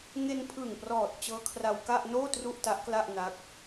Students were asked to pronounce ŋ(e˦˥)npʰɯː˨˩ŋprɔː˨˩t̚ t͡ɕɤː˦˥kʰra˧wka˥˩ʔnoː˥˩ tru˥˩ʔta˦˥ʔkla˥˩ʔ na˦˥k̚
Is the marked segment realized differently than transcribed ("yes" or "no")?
yes